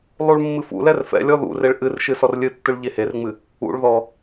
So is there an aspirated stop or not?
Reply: no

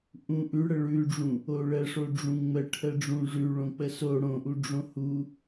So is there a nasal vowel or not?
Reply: yes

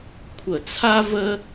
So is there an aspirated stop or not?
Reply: yes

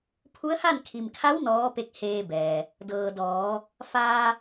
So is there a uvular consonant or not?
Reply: no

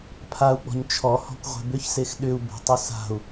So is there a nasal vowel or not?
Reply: no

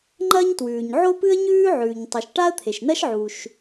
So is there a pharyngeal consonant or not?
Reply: yes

